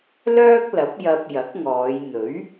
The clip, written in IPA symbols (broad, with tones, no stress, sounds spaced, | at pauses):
l œː˥ k̚ l ɐ˨˥ p̚ j ɐ˧ p̚ j ɐ˨˥ k̚ ŋ ɔː˨˧ j n̪ ɵ˨˥ ɥ